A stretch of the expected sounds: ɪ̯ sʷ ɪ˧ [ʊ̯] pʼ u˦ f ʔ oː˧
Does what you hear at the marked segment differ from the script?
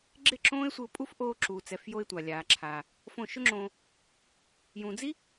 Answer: no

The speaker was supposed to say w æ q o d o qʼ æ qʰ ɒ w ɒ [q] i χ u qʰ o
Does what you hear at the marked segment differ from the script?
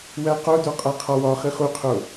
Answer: yes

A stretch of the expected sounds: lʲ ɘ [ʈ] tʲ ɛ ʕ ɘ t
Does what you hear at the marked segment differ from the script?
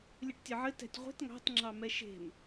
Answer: no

